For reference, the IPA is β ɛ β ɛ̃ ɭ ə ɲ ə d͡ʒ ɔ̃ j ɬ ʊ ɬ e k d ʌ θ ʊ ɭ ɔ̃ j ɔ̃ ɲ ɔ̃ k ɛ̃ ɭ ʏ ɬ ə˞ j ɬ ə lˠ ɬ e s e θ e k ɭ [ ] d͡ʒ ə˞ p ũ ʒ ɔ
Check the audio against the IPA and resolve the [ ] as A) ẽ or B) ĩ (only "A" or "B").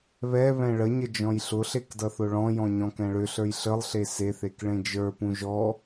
A